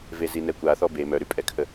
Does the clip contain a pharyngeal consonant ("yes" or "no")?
no